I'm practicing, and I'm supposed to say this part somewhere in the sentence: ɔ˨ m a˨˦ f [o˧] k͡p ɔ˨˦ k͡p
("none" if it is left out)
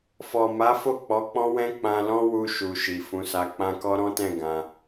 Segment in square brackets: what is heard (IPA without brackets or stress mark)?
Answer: o˦˨